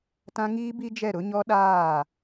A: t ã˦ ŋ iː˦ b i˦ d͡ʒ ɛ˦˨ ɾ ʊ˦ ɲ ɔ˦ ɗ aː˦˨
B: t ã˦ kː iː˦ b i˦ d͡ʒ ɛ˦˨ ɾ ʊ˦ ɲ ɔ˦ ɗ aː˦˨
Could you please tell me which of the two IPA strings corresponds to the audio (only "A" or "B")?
A